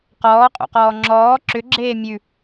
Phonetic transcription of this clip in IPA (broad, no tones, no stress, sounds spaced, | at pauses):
q ɔː qʼ o̰ q ɔː ŋ͡ǁ ɔː ǁ ʏ ɡ͡ǁ eː mʲ ʉ